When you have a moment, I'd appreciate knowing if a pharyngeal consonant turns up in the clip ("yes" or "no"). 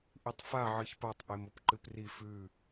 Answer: yes